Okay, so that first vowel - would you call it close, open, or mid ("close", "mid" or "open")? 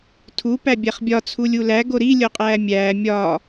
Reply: close